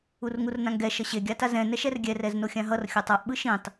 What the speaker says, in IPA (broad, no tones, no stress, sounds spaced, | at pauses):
u r ŋ u r n ã ŋ ɡ ɛ ʃ ʌ ɕ e ɡʲ a t a z ɛ̃ n ɛ ʃ ɛ r ɡʲ ɛ r ɛ z n o xʲ ã ɦ ʌ r xʲ o tˤ a ʔ ɓ ɯ ʃ ĩ tˤ